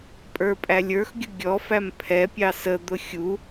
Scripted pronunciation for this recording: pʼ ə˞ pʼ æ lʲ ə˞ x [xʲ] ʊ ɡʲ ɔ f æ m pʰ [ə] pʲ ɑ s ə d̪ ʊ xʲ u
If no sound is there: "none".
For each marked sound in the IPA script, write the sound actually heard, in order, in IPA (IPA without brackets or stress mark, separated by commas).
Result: ɡʲ, ɛ